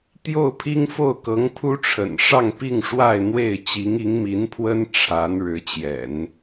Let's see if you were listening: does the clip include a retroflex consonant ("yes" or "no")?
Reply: yes